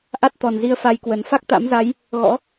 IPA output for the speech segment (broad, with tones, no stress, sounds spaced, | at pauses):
ʔ a˦˥ t̚ t̪ ɔ˨˩ n z i˧ ə̯ f a˧ j k w ə˨˩ n f a˦˥ k̚ t̪ a̰˧˥ m z a˨˦ j | ɣ ɔ̰˧˥